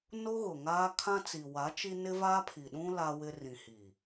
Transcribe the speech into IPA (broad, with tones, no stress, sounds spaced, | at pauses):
n o˦ ɣ ʊ˨ ŋ aː˦ kʰ ã˦ t͡s i˨ w a˨˦ t͡ʃ i˦ n ɪ˦ v aː˦ pʰ i˨ ɗ ũ˦ l a˦ w ɪ˦ r ĩ˨ h iː˨